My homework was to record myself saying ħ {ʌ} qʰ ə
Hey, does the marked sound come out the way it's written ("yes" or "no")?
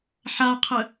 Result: no